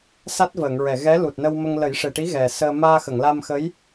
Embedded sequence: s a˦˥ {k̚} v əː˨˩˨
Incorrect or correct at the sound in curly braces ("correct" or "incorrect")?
incorrect